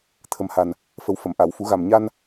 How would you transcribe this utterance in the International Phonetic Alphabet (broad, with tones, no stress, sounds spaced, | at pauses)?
t̪ʰ ə˨˩ m h a˨˩ n | f ə˨˩˦ w f ə˨˩˨ m ʔ a˨˩˨ w f u˨˩˦ ɣ a˨˩ m ɲ a˧ n